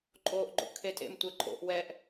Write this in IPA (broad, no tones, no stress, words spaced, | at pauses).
ǃʼoːʔɡ͡ǃo̰ʔkʰetʼḛm tʷɛǃʼo̰ʔ wɛʔ